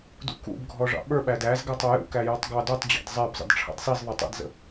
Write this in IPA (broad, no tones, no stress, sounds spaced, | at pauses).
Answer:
d ṵ k ṵ b ɡʱ ɔ ʐ ɑ̰ ɓ ə˞ ɓ æ d æ z ɡ æ tˤ ɔ j ṵ k æ j ɔ tˤ ɡ ɑ d u tˤ d͡ʑ ɑ̰ d zˤ æ b zˤ ə̰ d ʈ͡ʂʰ ɑ̰ d sˤ i z ðˤ ʊ tˤ ɛ̰ d z ə̰